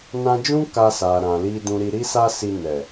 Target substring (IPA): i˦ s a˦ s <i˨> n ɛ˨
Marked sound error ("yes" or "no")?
yes